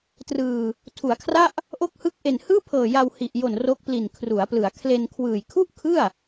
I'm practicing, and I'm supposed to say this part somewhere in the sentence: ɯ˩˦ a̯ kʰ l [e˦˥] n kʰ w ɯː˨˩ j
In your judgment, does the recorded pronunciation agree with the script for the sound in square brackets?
no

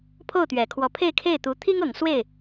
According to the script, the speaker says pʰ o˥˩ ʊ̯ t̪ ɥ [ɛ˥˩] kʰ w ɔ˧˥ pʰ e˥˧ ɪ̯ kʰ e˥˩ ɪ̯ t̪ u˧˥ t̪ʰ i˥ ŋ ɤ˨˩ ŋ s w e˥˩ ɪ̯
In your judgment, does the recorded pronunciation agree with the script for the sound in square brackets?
no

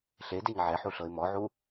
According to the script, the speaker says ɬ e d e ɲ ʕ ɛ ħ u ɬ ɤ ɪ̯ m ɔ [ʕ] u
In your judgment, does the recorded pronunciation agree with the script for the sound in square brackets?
yes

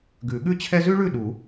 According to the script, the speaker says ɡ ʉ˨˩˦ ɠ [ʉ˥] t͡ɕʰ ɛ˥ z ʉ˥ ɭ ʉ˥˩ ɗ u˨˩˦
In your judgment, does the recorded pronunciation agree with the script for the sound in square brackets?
yes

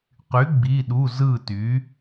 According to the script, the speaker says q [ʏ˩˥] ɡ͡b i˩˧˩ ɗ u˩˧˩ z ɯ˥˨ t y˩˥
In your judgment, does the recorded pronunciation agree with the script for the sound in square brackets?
no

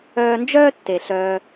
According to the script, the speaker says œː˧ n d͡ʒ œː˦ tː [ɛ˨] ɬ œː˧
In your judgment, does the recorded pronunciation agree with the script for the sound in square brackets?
no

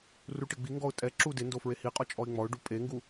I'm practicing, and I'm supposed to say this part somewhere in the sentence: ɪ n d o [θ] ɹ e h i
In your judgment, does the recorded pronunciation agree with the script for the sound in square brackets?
no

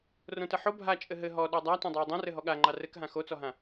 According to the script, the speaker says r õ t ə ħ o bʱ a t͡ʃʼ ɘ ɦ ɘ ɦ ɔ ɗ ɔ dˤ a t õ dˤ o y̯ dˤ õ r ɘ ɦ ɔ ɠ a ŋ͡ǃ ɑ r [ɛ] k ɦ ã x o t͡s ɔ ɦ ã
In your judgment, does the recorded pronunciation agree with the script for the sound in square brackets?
no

